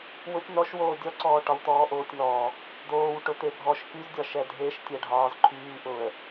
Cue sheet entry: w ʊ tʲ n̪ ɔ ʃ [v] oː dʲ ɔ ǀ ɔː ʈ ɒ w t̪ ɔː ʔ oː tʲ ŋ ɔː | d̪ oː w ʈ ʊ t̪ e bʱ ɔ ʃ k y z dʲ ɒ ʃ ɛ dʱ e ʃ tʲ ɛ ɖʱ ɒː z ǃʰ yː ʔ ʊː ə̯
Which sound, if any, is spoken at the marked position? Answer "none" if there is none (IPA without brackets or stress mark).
w